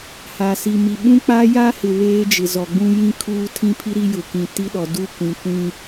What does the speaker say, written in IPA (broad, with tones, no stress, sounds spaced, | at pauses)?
h a˨ s i˨ m i˨ ɓ ũ˦ k͡p a˦ j a˦ h ɪ˨ β eː˦ d͡ʒ ɪ˨ z ɔ˨ ɡ͡b ũ˦ j ĩ˦ kʰ uː˦ tʰ ĩ˦ pʰ i˦ ɾ i˦ j ʊ˨ k ĩ˨ t i˦ ɗ ɔ˨ d u˦˨ kʷ ĩ˨ kʷ ĩ˨